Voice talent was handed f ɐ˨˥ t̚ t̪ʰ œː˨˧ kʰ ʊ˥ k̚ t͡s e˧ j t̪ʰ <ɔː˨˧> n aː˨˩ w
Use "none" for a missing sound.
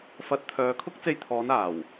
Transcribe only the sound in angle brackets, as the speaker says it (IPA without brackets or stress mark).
ɔː˨˧